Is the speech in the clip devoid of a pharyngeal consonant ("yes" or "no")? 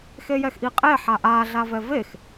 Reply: no